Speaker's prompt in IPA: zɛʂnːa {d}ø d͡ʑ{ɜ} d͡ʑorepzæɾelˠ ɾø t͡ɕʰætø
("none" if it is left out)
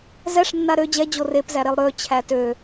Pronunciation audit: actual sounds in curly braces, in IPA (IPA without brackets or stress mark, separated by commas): ɾ, ɛ